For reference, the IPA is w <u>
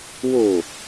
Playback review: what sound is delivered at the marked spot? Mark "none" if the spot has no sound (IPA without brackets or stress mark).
o